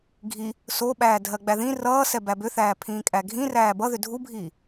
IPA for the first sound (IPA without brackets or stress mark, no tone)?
ɡʱ